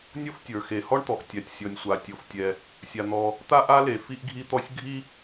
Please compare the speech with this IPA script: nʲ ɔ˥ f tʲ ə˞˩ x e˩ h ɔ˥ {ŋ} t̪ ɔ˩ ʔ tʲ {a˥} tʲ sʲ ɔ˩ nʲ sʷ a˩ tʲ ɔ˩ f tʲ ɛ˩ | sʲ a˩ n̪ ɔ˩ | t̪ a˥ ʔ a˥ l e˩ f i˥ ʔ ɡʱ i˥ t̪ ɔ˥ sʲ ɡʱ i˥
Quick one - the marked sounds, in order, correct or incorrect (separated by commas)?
incorrect, incorrect